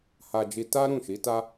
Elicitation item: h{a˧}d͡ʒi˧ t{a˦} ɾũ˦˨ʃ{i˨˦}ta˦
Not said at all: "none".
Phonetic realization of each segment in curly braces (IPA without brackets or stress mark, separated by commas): a˧, a˦, i˨˦